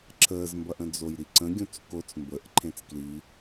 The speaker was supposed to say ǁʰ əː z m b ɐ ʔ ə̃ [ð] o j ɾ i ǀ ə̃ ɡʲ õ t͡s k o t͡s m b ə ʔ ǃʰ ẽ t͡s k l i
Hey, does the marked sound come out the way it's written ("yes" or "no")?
no